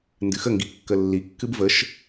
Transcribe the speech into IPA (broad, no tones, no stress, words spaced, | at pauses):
ndɨxəŋɡi kːəlːikːɨb vəʃ